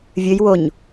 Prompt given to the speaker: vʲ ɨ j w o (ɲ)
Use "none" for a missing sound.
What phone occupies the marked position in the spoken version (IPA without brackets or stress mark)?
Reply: ɲ